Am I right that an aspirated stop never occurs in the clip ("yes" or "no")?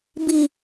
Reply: yes